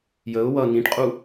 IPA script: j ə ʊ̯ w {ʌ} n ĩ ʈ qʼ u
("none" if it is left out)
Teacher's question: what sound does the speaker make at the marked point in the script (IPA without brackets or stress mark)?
ʌ